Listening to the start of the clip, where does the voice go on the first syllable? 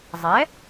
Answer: rising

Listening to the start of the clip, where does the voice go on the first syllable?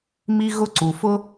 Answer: high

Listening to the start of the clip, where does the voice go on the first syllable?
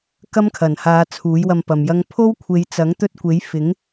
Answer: high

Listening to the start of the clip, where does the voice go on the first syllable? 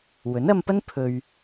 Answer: rising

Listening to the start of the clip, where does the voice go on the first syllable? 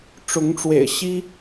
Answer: rising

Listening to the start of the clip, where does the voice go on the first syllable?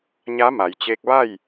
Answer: rising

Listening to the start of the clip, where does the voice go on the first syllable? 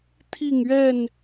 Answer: falling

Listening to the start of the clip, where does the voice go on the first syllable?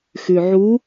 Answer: low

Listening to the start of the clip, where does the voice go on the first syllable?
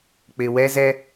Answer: low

